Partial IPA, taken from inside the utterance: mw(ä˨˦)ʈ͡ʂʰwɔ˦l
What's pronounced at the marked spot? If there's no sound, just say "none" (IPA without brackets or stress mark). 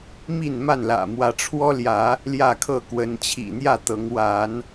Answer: ä˨˦